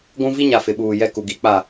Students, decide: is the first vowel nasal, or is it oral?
nasal